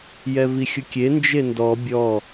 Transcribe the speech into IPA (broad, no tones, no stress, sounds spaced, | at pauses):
j ɛ v i xʲ ʊ kʲ e n d͡ʒ e n d ɔ bʲ ɔ